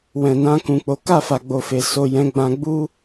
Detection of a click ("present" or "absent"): absent